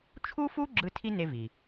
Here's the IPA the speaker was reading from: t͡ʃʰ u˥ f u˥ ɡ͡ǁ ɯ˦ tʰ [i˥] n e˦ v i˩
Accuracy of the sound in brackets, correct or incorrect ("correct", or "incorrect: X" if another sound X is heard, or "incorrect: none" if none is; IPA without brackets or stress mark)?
correct